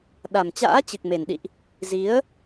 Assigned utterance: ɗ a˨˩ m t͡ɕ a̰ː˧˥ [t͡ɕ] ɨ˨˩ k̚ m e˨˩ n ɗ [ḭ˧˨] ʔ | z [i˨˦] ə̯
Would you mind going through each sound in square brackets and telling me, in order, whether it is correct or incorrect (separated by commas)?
correct, correct, correct